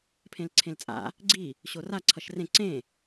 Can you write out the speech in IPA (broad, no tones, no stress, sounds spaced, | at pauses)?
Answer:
pʰ ẽ l ǀʰ ẽ l t͡sʼ a̰ | ɡ͡ǀ i | ɕ o r a ǀʰ ʌ ʃ r ẽ ǀ ẽ